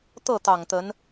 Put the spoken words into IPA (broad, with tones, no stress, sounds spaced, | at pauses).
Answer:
t̪ ɤ˥˩ t̪ ɑ˨˩ ŋ t̪ ə˧˥ n